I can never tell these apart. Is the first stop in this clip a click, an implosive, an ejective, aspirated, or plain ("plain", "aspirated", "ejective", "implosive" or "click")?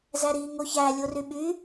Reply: implosive